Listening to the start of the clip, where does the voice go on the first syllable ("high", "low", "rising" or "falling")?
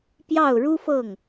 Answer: falling